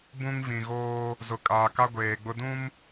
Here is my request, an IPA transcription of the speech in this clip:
b ũ˦ ŋ v ĩ˨ ɣ oː˦ | z ʊ˨ kʼ aː˨ k a˦ ɡʷ eː˨ ɡ͡b ʊ˦ d ũ˦ m

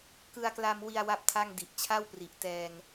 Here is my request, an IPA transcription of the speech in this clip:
k ɯ˧ a̯ k l a˧ m w i˧ a̯ w a˥˩ p̚ tʰ a˥˩ ŋ d i˨˩ ʔ t͡ɕʰ a˥˩ w p r i˨˩ ʔ t ɛː˧ ŋ

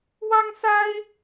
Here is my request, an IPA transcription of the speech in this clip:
w ɑ˥ ŋ s a˥ ɪ̯

